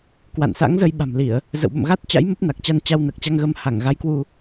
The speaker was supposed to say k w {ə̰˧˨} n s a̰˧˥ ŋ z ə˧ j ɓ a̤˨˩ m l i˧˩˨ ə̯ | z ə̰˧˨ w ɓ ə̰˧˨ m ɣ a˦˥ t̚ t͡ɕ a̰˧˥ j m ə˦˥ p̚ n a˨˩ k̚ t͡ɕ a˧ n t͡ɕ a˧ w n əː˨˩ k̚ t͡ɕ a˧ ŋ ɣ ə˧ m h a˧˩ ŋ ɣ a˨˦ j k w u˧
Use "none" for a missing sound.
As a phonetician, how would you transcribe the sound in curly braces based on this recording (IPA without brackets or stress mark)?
a̰˧˨